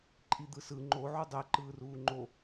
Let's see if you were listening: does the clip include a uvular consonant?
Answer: no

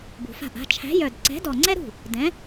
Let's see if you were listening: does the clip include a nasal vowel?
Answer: yes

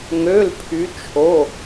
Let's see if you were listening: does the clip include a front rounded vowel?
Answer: yes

